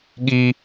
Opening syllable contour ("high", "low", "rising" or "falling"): high